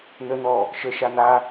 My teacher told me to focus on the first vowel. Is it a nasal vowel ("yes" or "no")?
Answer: no